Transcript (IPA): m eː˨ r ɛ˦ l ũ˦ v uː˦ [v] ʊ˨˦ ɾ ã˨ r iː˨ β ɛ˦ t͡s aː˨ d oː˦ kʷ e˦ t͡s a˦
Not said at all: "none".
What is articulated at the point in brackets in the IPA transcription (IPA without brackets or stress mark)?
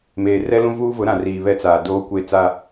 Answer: v